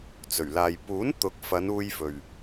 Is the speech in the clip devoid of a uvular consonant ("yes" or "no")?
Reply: yes